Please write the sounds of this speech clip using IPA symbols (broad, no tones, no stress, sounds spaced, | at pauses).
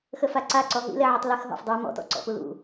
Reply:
x ə f a ǀ a ǀ ɔ ɦ ḭ l ɛ ʕ u tˤ l ɛ x ɦ ɔ̰ f dˤ a m ɔ̰ t ɔ̰ ǀ ɔ̰ p u l ṵ